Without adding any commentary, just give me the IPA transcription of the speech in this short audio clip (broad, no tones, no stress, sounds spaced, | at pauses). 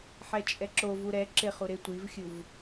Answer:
ħ ɛ t͡ʃʼ ɛ ǁ o v u ɾ ɛ ǁ ɪ χ u ɾ ɪ tʷ i v xʲ u v